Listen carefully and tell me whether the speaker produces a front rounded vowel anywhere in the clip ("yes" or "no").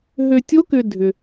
yes